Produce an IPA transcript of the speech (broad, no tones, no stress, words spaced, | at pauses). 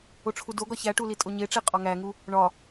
oʈ͡ʂʰudoɡɒ çæʈuli tʼoɲeʈ͡ʂe qʼɒŋæŋu | ɳɒ